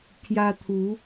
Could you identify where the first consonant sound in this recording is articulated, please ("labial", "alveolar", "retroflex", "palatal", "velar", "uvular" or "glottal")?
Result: velar